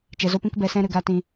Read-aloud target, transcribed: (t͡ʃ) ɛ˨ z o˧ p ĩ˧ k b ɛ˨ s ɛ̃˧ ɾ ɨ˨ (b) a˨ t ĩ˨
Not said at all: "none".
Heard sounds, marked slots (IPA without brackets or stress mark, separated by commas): t͡ʃ, ɡ